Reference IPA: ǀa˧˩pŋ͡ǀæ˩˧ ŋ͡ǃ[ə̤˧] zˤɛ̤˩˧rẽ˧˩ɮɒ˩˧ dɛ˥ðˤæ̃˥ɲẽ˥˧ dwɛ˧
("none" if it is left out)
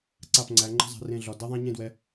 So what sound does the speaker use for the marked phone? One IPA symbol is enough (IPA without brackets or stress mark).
ə̤˧